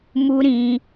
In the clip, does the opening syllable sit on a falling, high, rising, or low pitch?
high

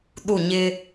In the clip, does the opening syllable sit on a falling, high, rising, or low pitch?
falling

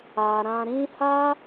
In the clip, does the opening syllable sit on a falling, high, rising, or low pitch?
low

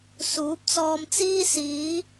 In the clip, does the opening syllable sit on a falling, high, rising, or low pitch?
rising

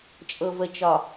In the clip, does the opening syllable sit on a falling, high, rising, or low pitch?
low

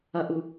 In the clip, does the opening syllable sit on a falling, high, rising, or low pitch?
low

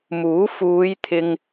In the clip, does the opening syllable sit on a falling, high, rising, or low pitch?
rising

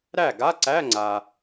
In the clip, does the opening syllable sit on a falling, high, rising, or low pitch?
falling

